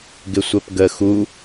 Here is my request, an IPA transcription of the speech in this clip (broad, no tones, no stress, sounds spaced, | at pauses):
ɡ ɪ sʷ ɜ p ɡ ə x u